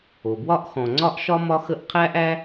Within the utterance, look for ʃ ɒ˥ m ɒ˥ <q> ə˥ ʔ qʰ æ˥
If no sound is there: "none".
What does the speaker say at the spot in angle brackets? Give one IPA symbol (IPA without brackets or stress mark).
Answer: x